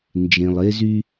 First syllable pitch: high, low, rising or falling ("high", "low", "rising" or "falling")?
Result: low